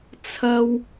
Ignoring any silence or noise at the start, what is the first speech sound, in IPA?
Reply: t͡sʰ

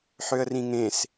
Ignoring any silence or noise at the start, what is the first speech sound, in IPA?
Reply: ħ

